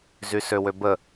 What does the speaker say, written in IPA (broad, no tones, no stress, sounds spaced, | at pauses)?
z y s ø w ø b ə